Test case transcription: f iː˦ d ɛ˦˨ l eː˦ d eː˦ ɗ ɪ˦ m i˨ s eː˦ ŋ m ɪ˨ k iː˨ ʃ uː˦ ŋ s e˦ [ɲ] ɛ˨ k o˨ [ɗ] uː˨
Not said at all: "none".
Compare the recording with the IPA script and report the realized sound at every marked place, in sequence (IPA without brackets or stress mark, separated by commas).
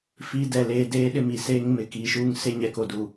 ɲ, d